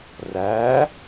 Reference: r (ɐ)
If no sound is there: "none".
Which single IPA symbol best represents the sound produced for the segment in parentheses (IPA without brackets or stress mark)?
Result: æ